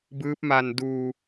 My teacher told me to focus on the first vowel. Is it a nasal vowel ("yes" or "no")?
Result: no